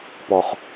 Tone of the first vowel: low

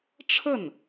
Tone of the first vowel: falling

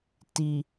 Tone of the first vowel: low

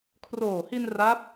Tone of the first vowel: low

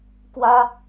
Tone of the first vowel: high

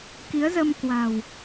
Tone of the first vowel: rising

